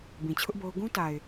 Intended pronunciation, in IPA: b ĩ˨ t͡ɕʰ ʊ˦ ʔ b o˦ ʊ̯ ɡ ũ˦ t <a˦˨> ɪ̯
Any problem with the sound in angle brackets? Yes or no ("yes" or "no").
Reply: yes